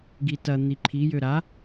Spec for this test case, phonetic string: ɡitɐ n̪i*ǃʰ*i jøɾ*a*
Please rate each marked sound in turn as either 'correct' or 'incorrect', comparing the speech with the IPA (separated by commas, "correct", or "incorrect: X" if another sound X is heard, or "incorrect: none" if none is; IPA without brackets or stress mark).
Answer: correct, correct